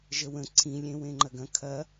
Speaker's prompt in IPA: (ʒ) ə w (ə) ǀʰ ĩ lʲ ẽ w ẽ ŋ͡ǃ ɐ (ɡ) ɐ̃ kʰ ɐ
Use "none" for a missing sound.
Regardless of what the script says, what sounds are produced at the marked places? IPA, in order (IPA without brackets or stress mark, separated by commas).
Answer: ʒ, ə̃, ɡ